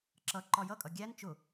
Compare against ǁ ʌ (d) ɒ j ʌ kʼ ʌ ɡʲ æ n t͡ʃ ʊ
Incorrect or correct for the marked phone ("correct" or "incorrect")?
incorrect